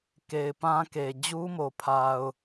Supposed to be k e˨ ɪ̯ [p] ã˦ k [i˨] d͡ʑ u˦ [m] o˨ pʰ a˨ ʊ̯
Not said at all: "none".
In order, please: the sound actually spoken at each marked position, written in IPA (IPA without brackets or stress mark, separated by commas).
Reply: p, e˨, m